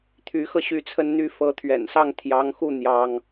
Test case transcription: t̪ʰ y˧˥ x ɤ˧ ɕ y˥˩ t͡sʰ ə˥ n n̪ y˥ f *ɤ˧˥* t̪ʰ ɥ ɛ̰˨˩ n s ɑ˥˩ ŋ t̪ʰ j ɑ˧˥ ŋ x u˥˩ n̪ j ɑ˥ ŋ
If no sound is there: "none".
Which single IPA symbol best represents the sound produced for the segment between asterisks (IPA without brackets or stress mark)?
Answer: ɤ˧˥